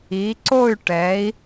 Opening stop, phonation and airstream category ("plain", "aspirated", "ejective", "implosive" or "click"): click